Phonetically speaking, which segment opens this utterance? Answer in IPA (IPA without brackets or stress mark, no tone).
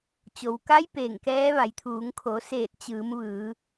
t͡ɕ